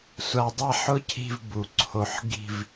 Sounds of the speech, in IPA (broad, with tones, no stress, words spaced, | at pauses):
sʷa˧dˤa˥˧ħʊ˥ cʰi̤˥˧v bu˩˧ǀʰo˧ħ ɡi̤˥˧v